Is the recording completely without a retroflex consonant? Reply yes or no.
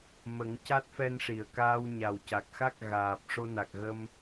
no